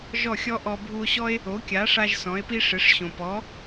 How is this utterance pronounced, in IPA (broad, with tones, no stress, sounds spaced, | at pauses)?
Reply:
ʒ ɔ˥˩ xʲ ɔ˥ ʔ ɔ˧ bʱ u˧ o̯ ɕ ɔ˥ e̯ | o˩˥ kʲ a˩˥ ʂ a˧ ʒ s ɔ̃˩˥ e̯ p i˥ ʂ ɪ˩˥ ʂ ɕ õ˩ p ɔ˩˥